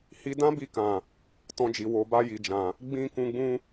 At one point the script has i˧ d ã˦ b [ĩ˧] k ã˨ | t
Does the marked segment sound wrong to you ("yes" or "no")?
yes